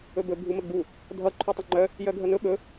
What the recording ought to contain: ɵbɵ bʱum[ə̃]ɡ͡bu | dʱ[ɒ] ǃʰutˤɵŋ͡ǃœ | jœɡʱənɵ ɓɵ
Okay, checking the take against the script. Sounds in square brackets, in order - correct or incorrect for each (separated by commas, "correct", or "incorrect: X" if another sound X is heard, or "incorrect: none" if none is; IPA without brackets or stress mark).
incorrect: ə, incorrect: ʌ